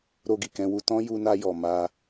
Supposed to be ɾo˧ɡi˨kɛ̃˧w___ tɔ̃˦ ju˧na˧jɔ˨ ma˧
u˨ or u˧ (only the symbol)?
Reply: u˧